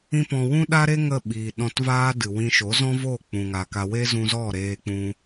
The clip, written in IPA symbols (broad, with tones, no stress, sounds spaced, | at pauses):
ĩ˦ p ɔ̃˧ w ũ˦ ɗ a˦ ɾ e˦ ŋ ə˦˨ ɓ iː˨ ɗ ɔ̃˧ t v aː˦ d ɨ˨ w ĩ˧ ʃ o˨˦ z ɔ̃˦ v o˦˨ k͡p ũ˨ ŋ a˨ k a˧ w e˦ z ũ˧ z ɔ˦˨ ɾ eː˧ k͡p ũ˧